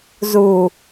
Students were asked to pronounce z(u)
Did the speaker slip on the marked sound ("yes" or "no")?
no